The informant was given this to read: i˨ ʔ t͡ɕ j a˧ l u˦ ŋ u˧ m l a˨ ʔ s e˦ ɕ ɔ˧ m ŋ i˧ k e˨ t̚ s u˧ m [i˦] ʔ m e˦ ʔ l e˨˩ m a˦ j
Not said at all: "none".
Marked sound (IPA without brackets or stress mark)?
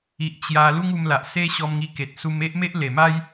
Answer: e˦